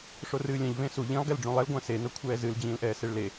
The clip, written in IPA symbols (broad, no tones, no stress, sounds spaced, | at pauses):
ʂ o r ɨː lʲ ɛ̃ ʎ v ẽ s u ʎ ĩ lˠ ɡ ɛ l ɖ͡ʐ ũ lˠ ɛ l ɡʷ ã s e n ɤ kʷʰ ɛː z ɨ l d͡ʑ ĩː l ʔ ɛː s e ɭ l e